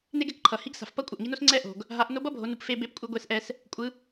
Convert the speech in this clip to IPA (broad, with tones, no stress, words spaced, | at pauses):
ne˥ɡɛ˩kǃʰʌ˩ hi˧˥ɡsa̤˩fpʌ˥ kʷʼʌ˩ʔŋi˧˥no˥s ŋ͡ǀɛ˥ ʔo̤˩ɡ | ɦa˩˧ʔ no˧˥bʌ˥bʱo˩˧nu˩˧p fe˧be˧˥pkʷʼɯ˧ ɡʷe˧sʔɛ˧s | kʷʼɯ˩˧